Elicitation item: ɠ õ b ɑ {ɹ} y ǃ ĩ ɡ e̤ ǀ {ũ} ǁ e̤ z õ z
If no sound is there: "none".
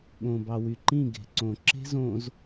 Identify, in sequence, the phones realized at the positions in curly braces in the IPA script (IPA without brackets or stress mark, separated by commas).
w, õ